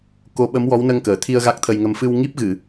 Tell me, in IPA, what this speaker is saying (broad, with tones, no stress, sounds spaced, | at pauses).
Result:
k o˧ ɓ ə˧˥ m w ɔ˧˥ w n ə˧ ŋ k əː˨˩ t̪ʰ i˧ ə̯ ɣ a˦˥ k̚ t̪ʰ ə˧ j ŋ ə˧ m f ɨ˧ w ŋ i˦˥ p̚ ɣ ɨ˨˩˨